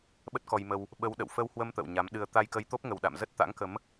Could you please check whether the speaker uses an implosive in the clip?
yes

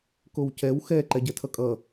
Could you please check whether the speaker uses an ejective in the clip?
yes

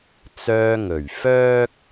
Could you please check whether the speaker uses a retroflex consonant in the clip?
no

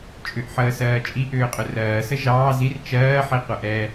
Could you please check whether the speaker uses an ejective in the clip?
yes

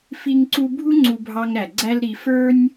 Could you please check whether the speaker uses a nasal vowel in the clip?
no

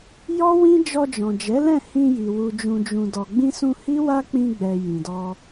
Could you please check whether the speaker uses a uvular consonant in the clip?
no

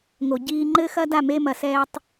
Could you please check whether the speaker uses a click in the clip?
yes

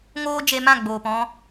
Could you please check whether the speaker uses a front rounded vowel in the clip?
no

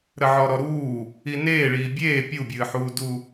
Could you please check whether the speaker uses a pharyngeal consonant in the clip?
yes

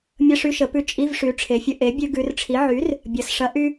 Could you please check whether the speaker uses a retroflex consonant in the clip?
yes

